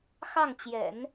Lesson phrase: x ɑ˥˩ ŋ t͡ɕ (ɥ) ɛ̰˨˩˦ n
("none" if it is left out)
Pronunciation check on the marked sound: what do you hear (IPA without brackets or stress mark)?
j